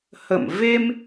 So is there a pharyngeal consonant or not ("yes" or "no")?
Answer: no